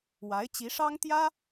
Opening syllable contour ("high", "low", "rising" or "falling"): rising